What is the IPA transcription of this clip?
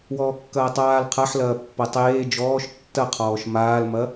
w ɔː kː ɐː tˤ aː l qʰ a ħ l ɐː pː ɐ tˤ eː d͡ʒ ɔː ʃ tː ɐ qʰ ɔː ʃ m aː l m ɐ

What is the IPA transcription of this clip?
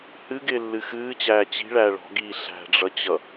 h ɨ ɡ ɪː lː ɨ x ɨː t͡ɕ æː t͡ɕ i̤ ɭ æː ɭ ɔ̤ ɡ iː ɬ æ̤ ɖ͡ʐ ʌ t͡ɕ ʌ

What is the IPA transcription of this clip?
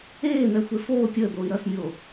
eː n̪ ɛ xʷ e f oː tʲ əː d̪ oː i̯ ɾ ʌ s nʲ oː

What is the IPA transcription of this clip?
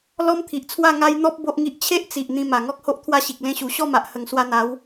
l ɔ˦ m t̪ʰ i˨ ʔ t͡sʰ w a˥˧ ŋ a˦ j n̪ ɔ˦ p̚ b o˦ ʔ ŋ i˦ ʔ t͡ɕʰ e˦ ʔ t͡s i˨ ʔ n̪ ĩ˧ m a˨˩ ŋ ɔ˦ k̚ h o˦ ʔ t̪ʰ w a˥˧ ɕ i˨ k̚ l ẽ˧ ɕ u˨˩ ɕ ɔ˥˧ m a˨ ʔ h ə˨˩ ŋ s w a˧ n̪ a˨˦ w

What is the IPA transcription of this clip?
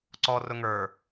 ǀ ɔ r ʊ ŋ ə˞

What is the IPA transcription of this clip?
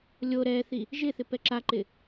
lʲ o ɾ ɛ θ i | ʒ ɪ θ ɪ p ɛ ǁ a ǃ ɪ

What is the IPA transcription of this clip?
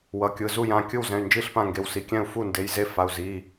w ʌ˩˧˩ kʲ ɯ˩˧˩ z u˥˩ j ã˩˧˩ kʲ ɯ˥˩ w z ɛ̃˩˧˩ y̯ n d͡ʒ i˥˩ ɬ p ã˥˩ ŋ ɡ e˩˧˩ w s i˩˧˩ kʲ ɛ̃˥˩ u̯ f u˥˩ n d e˩˧˩ j z e˥˩ f a˩˧˩ u̯ z i˩˧˩

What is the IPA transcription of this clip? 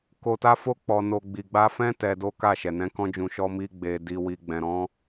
k o˧ t a˦ f o˦ k͡p ɔ˧ n o˧ ɡ͡b i˨ ɡ͡b a˧ f ɛ̃˦ t ɛ˧ d o˦ k a˦˨ ʃ ɛ˨ n ɛ̃˨˦ k ɔ̃˦ d͡ʒ ũ˧ ʃ ɔ˧ m i˧ ɡ͡b e˨ d i˨ w i˨ ɡ͡b ɛ̃˨ ɾ ɔ̃˨˦

